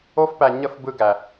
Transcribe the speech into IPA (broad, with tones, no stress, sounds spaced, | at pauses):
o˦ f p æ˧ ɲ ə˦ f b ɯ˦ ɡ æ˧